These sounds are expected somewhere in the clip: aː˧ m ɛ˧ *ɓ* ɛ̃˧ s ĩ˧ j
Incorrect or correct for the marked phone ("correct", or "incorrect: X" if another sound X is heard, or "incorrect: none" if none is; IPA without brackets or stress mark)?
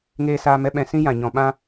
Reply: correct